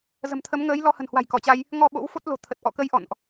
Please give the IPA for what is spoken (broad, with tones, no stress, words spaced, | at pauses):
zə̤˨˩mt̪ʰə˨˦mŋəː˨˦j lɔ˧hə̤˨˩nhwa̤˨˩j kɔ˧˩t͡ɕa˧j | ŋɔ˧ ɓo̰˧˥wfo˦˥t̚ lo̤˨˩t̪ʰə˨˩t̚ʔɔ̰˧˨kə˨˦j ʔɔ̰˧˨nʔ